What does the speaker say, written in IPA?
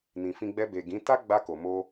n ĩ˨ f ĩ˧ ɡ͡b ɛ˧ b e˨ ɡ ĩ˨˦ t a˦ ɡ͡b a˧ k o˨ m o˧

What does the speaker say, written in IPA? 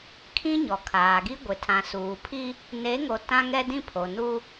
kʰ ĩ˦ ɲ ɔ˨ kʰ aː˨ ɡ i˦ ɡʷ ɪ˨ tʰ ã˨ s uː˨ pʰ i˦ | n e˨˦ ŋ o˨ t ã˦ ŋ ɛ˦ d ĩ˦ pʰ o˨ n u˦

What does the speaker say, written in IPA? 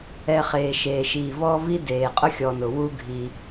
ɛ˨ χ eː˩ ʃ eː˩ ʃ iː˩ v ɔː˦ v i˥ d eː˩ qʼ ʊ˥ xʲ ɔ˨ n ʊ˩ w u˦ ɡʱ i˨

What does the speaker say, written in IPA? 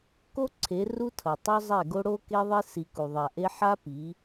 k o˦ ǀʰ e˨˦ r u˦ tʰ ʌ˨ tˤ o˦ zˤ ɛ˦˨ ɡ o˦ ɽ o˦ k e˦ ðˤ e˦ s i˨ k u˨ ðˤ a˨ ʔ e˦ ħ a˦ p i˨˦

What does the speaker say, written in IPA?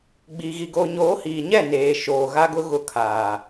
ɡ͡b iː˨ ɣ i˨ ɡ o˨ ɲ oː˨˦ h iː˨ ɲ ɛ˦˨ n eː˨ ʃ oː˨ ɣ a˦ ɡ ʊ˦ ɣ ʊ˦ kʰ aː˨

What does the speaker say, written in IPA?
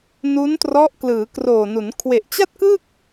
n u˦˥ n t r ɔ˦˥ ʔ k l ɯː˩˦ k r oː˨˩ n u˩˦ n kʰ w e˨˩ ʔ t͡ɕ a˥˩ t̚ k ɯ˥˩ k̚

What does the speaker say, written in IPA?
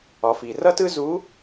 ɒ˩˧ f i˩ r ʌ˥ t ɯ˥ z u˧˥

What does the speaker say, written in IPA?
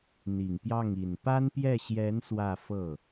n̪ i˨˩ ŋ p j ɑ˥˩ ŋ i˨˩ n p a˥ n p j ɛ˥˩ ɕ j ɛ˧˥ n s w ä˥˧ f ɤ˥˩

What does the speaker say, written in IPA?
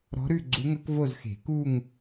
ɾ ɔ̤˧˥ ɾ ʉ˥˧ ɡ͡ǀ u˧˥ ŋ ɵ˧˥ k v o˥˧ z x e̤˨˩˦ k u˥˧ ŋ

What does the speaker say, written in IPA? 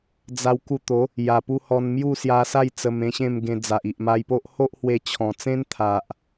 d͡z a˧ w k u˧ t̪ o˨˦ | j a˨˩ p u˧ h ɔ˧ n m j u˥˧ s j a˧ s a˥˧ j t͡s ə˧ m ẽ˧ ɕ ẽ˥˧ m ɡ ẽ˧ d͡z a˨ ʔ i˨ ʔ m a˧ j p o˦ ʔ h o˦ ʔ h w e˧ t͡ɕʰ ɔ̃˨˩ t͡s ẽ˦ n t̪ʰ a˨ ʔ

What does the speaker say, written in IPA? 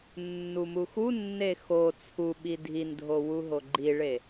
nː u m u x u nː e x o t͡sʰ u ɓ i dʱ i n dʱ o w u ɦ o ɡ͡ǃ i ɭ e

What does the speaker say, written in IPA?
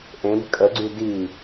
ʔ ẽ b kʼ ə ɡ͡ǀ y d i

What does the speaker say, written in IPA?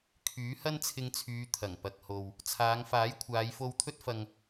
kʰ yː˨˥ h ɐ˥ n t͡sʰ ɪ˧ ŋ t͡sʰ yː˨˧ t̪ʰ ɐ˨˩ ŋ p ɐ˨ k̚ h o˨ w | t͡sʰ aː˨˧ ŋ f aː˨˥ j kʷʰ aː˨˧ j f o˧ w t̪ʰ ɵ˥ t̚ f ɐ˨ ŋ

